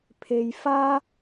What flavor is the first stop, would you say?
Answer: aspirated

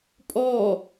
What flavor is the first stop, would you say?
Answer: ejective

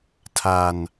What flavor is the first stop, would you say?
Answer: aspirated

